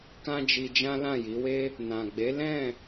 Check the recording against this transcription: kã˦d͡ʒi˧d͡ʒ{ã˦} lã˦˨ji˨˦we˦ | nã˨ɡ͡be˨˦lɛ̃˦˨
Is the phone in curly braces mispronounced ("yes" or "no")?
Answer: no